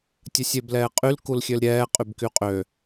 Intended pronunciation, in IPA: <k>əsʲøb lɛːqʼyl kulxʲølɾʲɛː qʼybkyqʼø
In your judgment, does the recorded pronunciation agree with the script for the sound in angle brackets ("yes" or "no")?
no